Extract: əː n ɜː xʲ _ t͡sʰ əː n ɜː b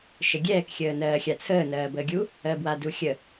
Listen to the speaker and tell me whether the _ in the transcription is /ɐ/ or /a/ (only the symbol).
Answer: a